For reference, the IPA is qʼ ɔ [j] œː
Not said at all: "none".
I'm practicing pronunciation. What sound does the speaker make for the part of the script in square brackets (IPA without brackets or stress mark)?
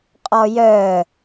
j